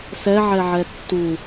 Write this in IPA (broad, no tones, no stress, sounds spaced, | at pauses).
s ɛ ʕ ɛ ʕ ɛ tː u